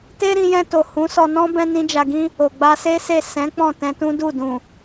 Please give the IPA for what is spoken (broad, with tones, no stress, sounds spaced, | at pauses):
t e˦ ɾ ĩ˧ j ɛ̃˧ t o˨ h ũ˨˦ s ɔ˧ n ɔ̃˦ b ɛ̃˦ n ĩ˦ d͡ʒ a˧ ɡ ĩ˦ | o˨ ɡ͡b a˧ s e˦ s e˦˨ s ɛ̃˨˦ k͡p ɔ̃˦˨ t ɛ̃˧ t ũ˦ d u˦˨ d ũ˨